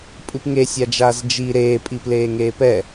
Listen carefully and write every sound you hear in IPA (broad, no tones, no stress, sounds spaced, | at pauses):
pʼ ɨ p ŋ e sʲ a d͡ʒ aː z d͡ʒ i ɾ eː pʼ i p l eː ŋ eː p ɛ